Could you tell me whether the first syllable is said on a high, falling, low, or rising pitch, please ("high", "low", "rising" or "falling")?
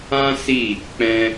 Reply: high